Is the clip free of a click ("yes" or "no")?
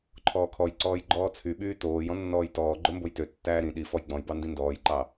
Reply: no